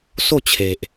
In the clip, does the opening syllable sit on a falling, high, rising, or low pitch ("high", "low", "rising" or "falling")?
falling